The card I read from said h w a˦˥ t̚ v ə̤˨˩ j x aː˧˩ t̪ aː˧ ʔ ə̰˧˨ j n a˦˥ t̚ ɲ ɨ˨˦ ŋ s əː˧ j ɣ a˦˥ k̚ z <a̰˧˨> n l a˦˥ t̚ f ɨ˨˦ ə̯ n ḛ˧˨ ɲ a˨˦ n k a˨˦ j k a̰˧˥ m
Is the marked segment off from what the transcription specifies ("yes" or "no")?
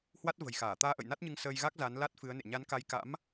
yes